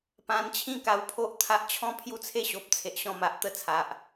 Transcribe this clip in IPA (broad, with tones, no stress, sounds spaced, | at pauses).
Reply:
p ã˧ n t͡ɕʰ ĩ˦ k a˧ w pʰ o˦ ʔ t̪ʰ a˦ ʔ t͡ɕʰ ɔ̃˦ pʰ j u˦ t͡sʰ e˥˧ ɕ o˨ p̚ t͡sʰ e˨ ʔ ɕ ɔ̃˧ m a˨ ʔ t̪ ə˥˧ t͡sʰ a˨ ʔ